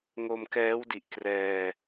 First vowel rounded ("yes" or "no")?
yes